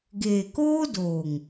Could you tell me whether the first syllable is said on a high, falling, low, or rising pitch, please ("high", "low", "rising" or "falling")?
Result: low